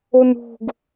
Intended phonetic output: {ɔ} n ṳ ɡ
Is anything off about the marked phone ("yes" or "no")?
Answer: yes